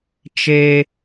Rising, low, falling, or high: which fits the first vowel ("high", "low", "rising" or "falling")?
high